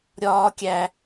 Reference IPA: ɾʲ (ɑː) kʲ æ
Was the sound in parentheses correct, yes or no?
no